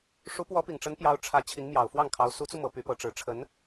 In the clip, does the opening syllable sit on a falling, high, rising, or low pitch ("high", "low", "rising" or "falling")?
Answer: rising